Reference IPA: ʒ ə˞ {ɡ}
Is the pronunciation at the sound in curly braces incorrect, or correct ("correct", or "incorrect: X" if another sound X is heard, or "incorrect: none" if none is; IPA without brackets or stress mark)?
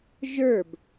incorrect: b